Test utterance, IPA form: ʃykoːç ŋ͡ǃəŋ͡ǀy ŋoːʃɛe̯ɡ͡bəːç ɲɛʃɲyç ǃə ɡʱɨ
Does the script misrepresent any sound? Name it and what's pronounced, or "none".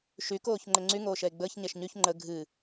ǃ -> ŋ͡ǃ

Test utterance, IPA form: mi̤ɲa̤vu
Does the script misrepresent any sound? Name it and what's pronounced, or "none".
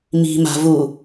ɲ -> m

